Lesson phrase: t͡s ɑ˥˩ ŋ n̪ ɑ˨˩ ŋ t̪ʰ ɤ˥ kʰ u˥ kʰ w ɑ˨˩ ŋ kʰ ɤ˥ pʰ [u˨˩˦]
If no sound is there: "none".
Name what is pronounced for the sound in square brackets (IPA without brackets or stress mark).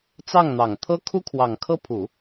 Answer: u˨˩˦